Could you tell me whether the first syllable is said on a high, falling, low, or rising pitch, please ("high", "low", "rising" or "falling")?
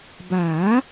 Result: rising